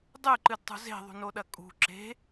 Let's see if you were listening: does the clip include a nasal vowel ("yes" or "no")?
no